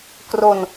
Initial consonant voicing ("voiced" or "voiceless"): voiceless